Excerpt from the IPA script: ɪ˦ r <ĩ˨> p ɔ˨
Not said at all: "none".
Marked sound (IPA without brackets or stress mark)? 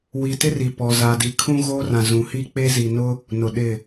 i˨